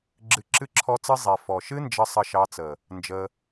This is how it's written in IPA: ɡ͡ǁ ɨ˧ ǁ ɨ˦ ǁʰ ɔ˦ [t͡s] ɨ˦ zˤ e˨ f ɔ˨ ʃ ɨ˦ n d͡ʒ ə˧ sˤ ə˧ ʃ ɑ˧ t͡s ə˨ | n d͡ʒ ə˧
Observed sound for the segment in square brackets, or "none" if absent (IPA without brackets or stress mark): t͡s